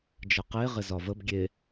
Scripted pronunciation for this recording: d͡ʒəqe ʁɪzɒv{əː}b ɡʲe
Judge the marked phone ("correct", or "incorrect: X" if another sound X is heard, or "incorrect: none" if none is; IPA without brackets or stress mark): incorrect: ə